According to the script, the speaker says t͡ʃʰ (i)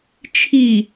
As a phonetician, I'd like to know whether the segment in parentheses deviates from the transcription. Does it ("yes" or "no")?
no